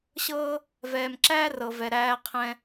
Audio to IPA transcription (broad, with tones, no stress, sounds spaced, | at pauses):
ɕ ɤː˥ | v ɛː˧ m ǁ æː˥ r ɤ˧ v ɛ˧ ɾ æː˧ qʰ ɛ̃˧